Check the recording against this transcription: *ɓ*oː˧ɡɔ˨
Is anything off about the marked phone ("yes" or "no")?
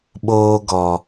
no